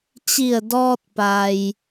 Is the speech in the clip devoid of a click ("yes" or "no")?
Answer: yes